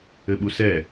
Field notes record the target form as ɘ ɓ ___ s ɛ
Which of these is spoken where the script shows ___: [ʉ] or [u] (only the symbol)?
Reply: u